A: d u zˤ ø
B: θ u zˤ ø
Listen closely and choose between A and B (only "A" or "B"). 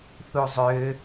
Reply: B